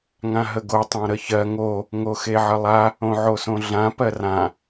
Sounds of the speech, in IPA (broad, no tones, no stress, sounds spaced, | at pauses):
ŋ ã ɦ ə ɡ o tˤ ã ɾ ə ç ɜ ŋ o | ŋ o x e ʕ ə lˠ a | õ ʕ o s õ ɮ ã p ɜ r ã